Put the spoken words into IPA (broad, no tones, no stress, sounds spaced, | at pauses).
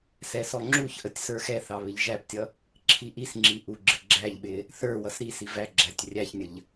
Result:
s ɛ s ɔ ŋ͡ǁ u ç ʔ ə tʲ s ə˞ x ɛ θ ɑ β ɪ ʎ ʒ æ p tʲ ʌ | ǁʰ i ʔ i s ŋ͡ǁ i ʔ u ɡ͡ǁ ɪ ɡ͡ǁ æ ʎ ɓ ɪ | θ ə˞ w ʌ s ɾ i s i v æ ɡ͡ǁ æ tʲ rʲ æ ç nʲ ə ʎ